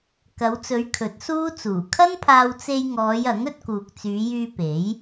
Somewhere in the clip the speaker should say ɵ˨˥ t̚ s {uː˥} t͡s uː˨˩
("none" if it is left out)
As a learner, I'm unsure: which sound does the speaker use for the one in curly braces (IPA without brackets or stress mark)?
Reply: uː˥